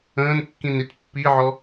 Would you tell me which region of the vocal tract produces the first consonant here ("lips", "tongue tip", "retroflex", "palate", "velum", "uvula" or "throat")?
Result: tongue tip